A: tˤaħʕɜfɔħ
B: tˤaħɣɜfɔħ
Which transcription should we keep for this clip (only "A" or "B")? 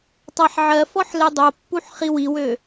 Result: A